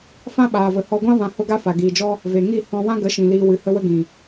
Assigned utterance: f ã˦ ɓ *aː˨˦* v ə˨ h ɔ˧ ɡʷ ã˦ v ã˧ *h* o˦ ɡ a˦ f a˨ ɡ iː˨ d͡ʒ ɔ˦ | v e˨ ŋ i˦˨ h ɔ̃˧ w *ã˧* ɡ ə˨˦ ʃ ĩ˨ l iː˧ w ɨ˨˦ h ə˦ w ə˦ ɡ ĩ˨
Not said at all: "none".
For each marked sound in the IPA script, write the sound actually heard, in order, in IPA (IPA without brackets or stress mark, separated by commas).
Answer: aː˨, h, ã˦